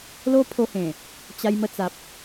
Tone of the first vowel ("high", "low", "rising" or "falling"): high